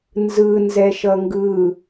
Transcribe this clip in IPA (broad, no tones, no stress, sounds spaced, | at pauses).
n z ɯ n z ɛ ʃ ʌ ŋ ɡ ɯ